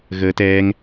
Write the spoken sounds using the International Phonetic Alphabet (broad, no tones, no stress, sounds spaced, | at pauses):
ɣ əː t ɛː ŋ